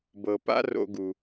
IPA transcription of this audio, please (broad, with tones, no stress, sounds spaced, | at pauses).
b ɤ˩ p a̰˦ r o̰˨ ɡ u˩